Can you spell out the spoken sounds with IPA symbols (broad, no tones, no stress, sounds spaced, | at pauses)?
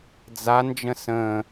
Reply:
d͡z a n d͡ʒ ə̃ s ə̃ː